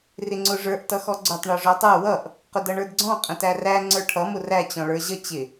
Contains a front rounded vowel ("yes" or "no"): no